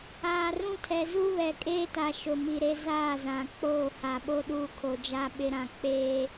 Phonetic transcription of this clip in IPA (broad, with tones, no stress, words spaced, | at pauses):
aː˨rũ˦tʰɛ˨ zu˦βɛ˨ kʼeː˦ta˨ ʃʊ˨mi˨ɾe˦ zaː˦˨zã˨k͡poː˦˨ ha˨ɓo˦ɗuː˦ kʰo˨d͡ʒa˦ɓɪ˦ɾã˦˨ k͡peː˦